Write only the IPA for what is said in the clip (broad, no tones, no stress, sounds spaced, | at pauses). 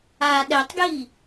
a ɗ ɛ tˤ ɡ j i